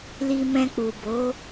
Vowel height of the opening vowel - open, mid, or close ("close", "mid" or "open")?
close